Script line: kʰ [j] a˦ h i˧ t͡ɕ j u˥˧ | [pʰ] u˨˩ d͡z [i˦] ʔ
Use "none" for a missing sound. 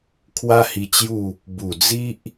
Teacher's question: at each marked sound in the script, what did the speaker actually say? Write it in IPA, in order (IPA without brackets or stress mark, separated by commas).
w, b, i˦